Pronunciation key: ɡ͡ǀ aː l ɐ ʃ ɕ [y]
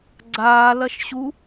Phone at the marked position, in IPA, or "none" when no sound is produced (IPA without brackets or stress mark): u